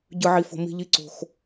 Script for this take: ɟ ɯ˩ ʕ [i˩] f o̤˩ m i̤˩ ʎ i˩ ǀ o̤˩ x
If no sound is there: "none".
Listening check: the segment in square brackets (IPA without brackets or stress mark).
i˩